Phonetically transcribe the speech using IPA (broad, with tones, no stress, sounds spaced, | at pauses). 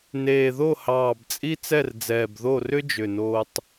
n eː˨˩ ð o˥˨ h ɑː˨˩ b t͡sʼ i˥ t͡s ɛ˥˨ r d͡z ɛː˨˩ b ð o˥˨ r ʏ˥ d͡ʒ ʏ˨˩ n oː˧ tˤ